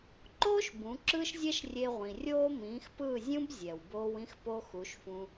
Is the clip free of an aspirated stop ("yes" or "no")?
yes